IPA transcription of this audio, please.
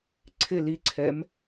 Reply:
ǀʰ ɪ l i ǀʰ ɛ m

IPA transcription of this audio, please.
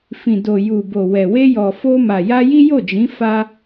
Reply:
f ĩ˨ d o˨ j u˨ b o˨ w ɛ˨ w e˧ j ɔ˨ f o˧ m a˨ j a˧ j i˦ j o˦˨ d͡ʒ ĩ˨˦ f a˧

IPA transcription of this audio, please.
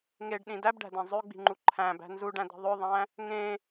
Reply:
ŋ e ɖ ɗ ĩ d æ b ɖ æ̤ d æ̃ zˤ ø ɡ͡b i̤ ŋ͡ǃ u ǃʰ æ̃ b æ̤ n z u ɖ æ̃ d i̤ ðˤ ø ðˤ æ̃ | ŋ ẽ

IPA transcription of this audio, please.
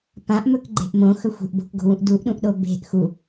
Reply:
p ã ʔ m ɵ k ɡ͡ǃ e̤ ʔ m õ x ɵ xʷ e̤ ʔ b o̤ k ɡ o̤ w ũ ʔ d u ʔ ɗ ũ ʔ ɗ o b e̤ ʔ x u

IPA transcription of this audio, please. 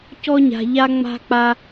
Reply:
c ɔ˦ ɲ a̤˧ ʎ a˦ ŋ͡m a̤˦ k͡p a˦

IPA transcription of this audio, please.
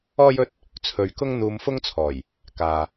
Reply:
ɔː˥ j ɵ˥ t̚ | t͡sʰ ɵ˧ ɥ k ʊ˥ ŋ n̪ uː˧ m f ʊ˥ ŋ t͡sʰ ɔː˨˩ j | k aː˨

